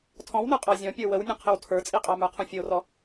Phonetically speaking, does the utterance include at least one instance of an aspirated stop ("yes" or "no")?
yes